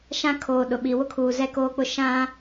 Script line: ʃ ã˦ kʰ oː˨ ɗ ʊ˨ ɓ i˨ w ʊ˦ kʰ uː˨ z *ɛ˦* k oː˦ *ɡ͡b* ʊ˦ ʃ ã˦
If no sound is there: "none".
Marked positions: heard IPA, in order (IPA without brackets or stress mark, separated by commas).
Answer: ɛ˦, k͡p